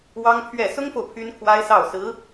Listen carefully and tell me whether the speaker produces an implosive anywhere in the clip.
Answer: no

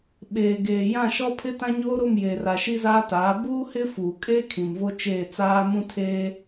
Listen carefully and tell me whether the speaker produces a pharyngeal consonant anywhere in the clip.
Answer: no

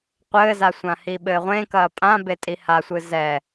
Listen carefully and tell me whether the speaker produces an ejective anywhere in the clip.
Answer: yes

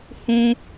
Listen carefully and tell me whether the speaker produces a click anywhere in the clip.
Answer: no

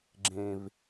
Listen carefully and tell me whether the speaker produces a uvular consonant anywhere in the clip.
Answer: no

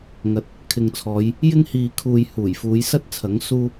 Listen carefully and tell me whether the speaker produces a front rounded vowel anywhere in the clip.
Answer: no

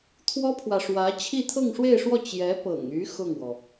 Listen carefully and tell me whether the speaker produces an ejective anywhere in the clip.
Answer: no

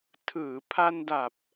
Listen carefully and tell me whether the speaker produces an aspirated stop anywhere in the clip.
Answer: yes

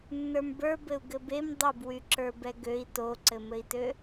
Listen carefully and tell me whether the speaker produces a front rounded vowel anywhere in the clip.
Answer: yes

